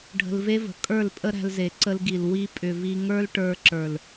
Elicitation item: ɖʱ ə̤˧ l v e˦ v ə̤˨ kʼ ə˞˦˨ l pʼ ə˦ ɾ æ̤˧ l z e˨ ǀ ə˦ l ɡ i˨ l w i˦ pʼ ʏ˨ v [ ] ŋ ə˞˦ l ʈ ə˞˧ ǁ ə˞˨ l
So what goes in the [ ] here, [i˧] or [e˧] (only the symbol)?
i˧